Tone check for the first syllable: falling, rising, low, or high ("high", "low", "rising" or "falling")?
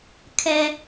high